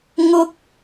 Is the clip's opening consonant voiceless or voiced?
voiced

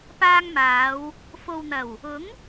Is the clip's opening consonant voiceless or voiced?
voiceless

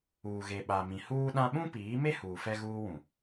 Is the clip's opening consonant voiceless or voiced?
voiced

